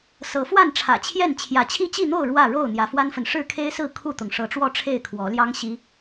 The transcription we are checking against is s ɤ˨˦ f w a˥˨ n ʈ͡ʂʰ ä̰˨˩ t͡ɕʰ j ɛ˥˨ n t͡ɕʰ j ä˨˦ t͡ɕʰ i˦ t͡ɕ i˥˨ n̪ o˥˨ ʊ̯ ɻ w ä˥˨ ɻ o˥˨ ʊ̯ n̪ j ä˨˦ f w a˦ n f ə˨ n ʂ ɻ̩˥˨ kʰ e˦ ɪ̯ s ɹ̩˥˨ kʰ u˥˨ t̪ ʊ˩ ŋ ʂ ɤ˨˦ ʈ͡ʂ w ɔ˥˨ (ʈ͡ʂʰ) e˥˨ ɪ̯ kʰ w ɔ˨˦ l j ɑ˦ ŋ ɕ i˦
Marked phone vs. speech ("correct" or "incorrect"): correct